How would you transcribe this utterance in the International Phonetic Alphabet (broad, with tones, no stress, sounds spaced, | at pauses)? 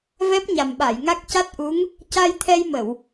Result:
v ɛ˦˥ p̚ ɲ a˨˩ m ɓ a˨˩˨ j ŋ a˦˥ k̚ c a˦˥ t̚ ʔ u˧˥ ŋ | c a˧ j t̪ʰ ɛ˧ j m ə˨˩˨ w